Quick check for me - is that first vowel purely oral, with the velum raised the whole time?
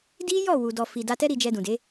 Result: yes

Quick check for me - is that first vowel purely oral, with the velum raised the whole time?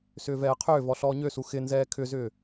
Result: yes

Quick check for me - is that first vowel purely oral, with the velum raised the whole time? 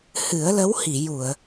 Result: yes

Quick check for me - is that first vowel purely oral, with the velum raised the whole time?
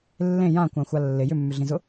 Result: no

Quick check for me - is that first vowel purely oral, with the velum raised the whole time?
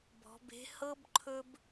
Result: yes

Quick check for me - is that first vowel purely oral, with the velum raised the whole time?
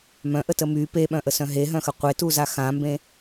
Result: no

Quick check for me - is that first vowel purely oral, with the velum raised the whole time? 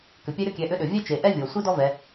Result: yes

